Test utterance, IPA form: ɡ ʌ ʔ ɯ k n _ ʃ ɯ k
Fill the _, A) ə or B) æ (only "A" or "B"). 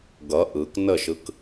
A